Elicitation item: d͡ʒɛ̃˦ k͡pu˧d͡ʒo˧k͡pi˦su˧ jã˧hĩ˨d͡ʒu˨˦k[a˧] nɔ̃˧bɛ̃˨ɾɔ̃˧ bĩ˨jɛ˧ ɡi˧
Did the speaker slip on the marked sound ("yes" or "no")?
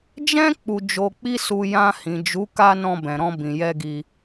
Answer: no